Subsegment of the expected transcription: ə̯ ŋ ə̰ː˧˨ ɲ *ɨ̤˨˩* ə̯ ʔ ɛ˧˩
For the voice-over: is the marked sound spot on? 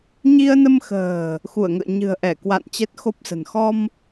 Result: yes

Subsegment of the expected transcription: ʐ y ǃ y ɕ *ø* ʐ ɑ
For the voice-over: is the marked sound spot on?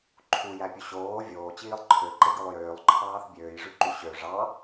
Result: yes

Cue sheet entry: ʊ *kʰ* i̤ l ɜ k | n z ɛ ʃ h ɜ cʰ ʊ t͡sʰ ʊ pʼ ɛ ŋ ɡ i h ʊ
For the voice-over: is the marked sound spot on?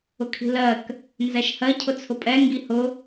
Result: yes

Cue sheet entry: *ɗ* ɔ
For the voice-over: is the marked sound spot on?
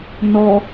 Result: no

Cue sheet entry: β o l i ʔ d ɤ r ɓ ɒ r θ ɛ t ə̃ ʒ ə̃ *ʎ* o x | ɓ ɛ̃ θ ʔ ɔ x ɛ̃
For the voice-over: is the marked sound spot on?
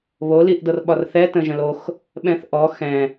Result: no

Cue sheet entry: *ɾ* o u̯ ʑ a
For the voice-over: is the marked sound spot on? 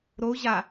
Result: yes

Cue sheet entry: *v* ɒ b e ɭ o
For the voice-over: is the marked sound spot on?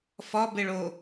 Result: no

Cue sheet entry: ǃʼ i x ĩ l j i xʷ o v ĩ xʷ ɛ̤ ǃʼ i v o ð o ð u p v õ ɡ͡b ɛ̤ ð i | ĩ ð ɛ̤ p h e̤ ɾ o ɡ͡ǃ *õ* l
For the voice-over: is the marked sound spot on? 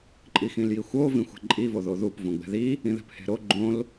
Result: yes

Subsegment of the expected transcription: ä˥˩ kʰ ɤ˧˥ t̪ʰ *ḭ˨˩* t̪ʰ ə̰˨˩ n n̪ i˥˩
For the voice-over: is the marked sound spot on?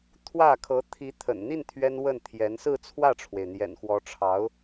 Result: no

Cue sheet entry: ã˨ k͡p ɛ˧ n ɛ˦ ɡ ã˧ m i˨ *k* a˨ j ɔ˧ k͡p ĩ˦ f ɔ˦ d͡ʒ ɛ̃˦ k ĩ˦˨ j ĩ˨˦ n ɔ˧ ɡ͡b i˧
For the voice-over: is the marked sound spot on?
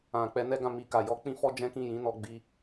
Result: yes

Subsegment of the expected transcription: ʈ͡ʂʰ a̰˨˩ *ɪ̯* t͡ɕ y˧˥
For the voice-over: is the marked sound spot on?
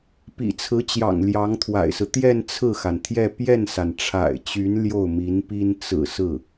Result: yes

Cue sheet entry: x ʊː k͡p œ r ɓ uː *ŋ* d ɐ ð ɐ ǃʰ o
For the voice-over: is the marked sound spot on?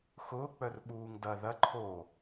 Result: yes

